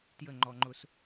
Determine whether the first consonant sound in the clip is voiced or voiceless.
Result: voiceless